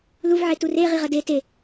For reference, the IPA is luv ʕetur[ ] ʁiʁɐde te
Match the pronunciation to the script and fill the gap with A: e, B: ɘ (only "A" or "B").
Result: A